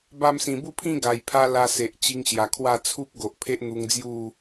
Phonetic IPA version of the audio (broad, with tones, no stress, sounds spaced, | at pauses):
b a˧ m s ĩ˨˩ b u˥˧ pʰ ĩ˥˧ ɡ a˨˩ j pʰ a˦ l a˧ s e˨ ʔ t͡ɕ i˧ ŋ ɕ j a˨˩ kʰ w a˥˧ t͡sʰ u˦ p̚ ɡ o˨ ʔ pʰ e˦ ʔ n̪ u˧ ŋ d͡z j u˥˧